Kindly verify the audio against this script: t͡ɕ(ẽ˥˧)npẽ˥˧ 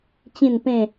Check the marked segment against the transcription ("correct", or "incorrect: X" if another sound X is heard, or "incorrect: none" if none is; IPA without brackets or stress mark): incorrect: ĩ˥˧